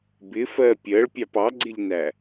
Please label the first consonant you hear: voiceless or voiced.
voiced